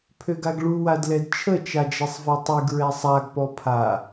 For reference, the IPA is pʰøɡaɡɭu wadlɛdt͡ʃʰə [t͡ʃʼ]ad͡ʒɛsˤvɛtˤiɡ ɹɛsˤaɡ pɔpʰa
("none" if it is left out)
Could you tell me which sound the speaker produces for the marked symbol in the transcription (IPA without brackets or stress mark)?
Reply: t͡ʃ